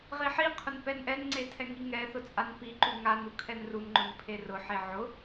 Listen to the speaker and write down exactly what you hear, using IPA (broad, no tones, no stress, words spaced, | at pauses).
ʁiħiqʰʊn pɛnʔɛnŋ͡ǀe tʰɛŋiŋɛθʊ t͡sʼanpiǃu ŋanu kʰɛnrunŋ͡ǃʊn pʰerʊħe ʕʊ